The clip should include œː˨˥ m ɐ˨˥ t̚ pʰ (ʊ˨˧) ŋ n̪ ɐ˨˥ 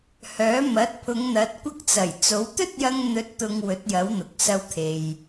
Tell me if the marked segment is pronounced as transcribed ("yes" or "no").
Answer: yes